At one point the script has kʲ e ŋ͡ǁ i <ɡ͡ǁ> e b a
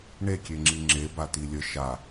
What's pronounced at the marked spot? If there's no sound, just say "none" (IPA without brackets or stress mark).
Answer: ŋ͡ǁ